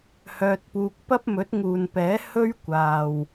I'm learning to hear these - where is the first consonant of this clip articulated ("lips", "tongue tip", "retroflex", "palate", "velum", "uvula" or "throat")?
throat